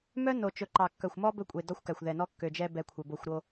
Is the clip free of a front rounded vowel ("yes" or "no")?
no